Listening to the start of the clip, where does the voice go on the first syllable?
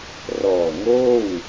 low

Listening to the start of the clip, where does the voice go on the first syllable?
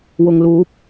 low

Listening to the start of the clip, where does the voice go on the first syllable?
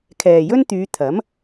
low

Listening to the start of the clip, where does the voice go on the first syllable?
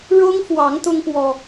high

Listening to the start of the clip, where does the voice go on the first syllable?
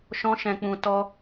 high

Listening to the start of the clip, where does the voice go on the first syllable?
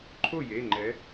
falling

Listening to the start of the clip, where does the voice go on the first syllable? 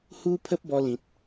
high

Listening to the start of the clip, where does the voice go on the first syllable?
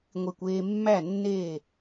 low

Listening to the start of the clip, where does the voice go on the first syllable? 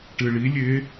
low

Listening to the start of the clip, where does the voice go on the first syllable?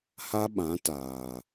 high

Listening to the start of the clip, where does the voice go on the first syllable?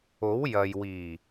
rising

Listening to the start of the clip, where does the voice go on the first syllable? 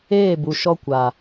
falling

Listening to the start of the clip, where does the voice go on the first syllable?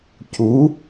rising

